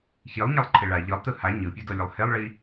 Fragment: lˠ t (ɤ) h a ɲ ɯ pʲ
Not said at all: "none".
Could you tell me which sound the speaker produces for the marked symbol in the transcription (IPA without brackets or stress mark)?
ɯ